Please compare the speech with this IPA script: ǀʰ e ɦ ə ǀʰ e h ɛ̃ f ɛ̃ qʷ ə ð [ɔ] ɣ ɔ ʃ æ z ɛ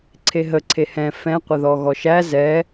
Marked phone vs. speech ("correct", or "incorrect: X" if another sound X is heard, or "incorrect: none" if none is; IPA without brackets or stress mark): correct